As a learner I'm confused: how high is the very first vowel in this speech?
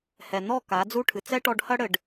mid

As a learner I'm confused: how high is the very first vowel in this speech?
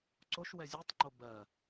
mid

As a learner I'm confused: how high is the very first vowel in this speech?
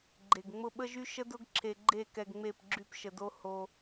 mid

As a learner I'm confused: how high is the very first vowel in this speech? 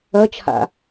low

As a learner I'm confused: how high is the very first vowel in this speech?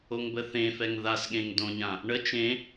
mid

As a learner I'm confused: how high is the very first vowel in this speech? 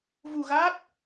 high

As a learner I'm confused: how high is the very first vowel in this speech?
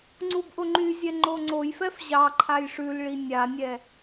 high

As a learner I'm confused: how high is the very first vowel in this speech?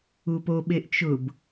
high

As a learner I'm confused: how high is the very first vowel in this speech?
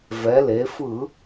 mid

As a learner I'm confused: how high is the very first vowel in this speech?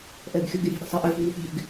mid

